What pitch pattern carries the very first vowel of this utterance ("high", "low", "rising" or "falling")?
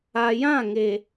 low